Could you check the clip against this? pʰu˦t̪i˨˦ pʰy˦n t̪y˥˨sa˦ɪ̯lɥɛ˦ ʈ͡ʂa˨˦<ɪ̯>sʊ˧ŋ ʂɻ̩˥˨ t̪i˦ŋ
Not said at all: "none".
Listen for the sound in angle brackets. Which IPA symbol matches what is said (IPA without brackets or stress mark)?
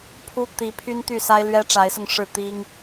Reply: ɪ̯